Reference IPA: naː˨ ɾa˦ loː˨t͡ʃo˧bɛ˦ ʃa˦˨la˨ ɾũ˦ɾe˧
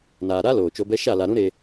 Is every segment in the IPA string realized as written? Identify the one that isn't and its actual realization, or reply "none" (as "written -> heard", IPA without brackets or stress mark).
none